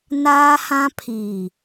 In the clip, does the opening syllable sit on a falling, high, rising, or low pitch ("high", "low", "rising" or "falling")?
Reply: high